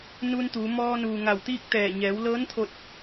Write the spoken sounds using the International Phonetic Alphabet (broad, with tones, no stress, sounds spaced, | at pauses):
n u˧ n t̪ uː˩˧ m ɔː˧ n uː˩ ŋ a˧˩ w t̪ iː˥˨ k̚ t̪ ɛː˧˩ ɲ ɛː˩˧ w l ɤː˧˥ n t̪ʰ o˧ t̚